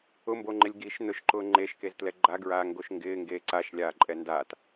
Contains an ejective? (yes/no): yes